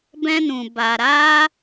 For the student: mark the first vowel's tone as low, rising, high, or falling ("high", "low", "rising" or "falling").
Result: high